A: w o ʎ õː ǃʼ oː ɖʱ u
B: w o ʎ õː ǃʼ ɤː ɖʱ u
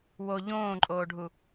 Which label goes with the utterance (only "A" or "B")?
A